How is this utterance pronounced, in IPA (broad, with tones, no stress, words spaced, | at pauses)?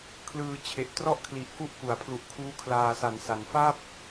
kʰlɯː˧t͡ɕʰe˨˩ʔtrɔ˥˩ʔ kʰli˨˩ʔku˥˩ʔ ku˩˦a̯pʰlu˨˩ʔkʰuː˦˥ kʰlaː˧sa˨˩n sa˩˦n fa˥˩p̚